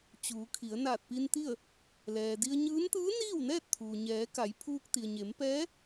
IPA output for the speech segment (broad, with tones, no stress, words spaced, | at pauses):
t͡ɕuː˩˧kʰi˩˧ə̯ naː˧˩t̚pi˧nt̪i˥˨ə̯ | lɛː˩di˧ə̯ɲɯː˧˥n t̪ɯː˧˥niː˥˨wnɛː˥˨t̚ t̪ʰuː˩ɲɛː˩˧ ka˩˧jpʰuː˧k̚t̪i˩ə̯ ɲe˩˧mpɛː˧˥